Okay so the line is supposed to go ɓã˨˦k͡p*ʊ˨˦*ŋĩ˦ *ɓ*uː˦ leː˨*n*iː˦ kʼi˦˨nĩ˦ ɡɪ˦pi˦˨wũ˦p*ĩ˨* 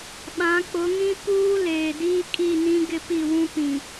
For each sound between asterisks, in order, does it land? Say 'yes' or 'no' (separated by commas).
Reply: yes, no, no, yes